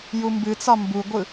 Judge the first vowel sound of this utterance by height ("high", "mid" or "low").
high